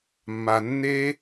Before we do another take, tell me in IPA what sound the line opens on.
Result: mː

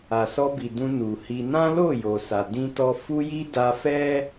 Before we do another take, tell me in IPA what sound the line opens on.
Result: a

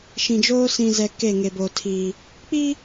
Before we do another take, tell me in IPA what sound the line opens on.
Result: ʃ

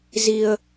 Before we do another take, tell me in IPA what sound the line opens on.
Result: z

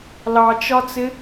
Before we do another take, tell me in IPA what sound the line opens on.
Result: l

